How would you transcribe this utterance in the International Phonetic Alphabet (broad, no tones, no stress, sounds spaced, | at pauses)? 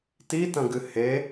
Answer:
t i t ɐ̃ ɡ ɨ h e